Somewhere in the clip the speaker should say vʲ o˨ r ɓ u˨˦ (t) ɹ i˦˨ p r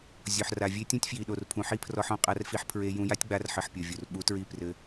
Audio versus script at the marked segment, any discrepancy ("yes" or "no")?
no